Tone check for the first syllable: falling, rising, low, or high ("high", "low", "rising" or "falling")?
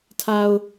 low